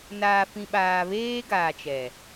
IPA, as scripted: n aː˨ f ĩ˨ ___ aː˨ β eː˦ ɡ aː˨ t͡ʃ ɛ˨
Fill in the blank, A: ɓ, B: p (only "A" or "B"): A